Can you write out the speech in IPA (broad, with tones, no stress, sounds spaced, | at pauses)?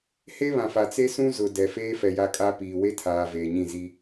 h e˦ β ã˨ f a˨ t͡s e˦ s ũ˦ z ʊ˨ d ɛ˨ f eː˦ f ɛ˨ j a˦ kʼ a˦ p iː˨ w e˦ tʰ aː˨ v eː˨ ɲ ĩ˦˨ z i˦